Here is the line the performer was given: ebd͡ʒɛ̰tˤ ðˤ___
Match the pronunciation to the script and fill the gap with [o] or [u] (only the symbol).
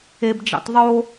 o